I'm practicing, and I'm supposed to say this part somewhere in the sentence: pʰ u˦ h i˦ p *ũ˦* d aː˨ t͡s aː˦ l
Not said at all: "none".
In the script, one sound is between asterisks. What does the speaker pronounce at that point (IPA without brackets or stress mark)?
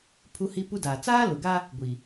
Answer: u˦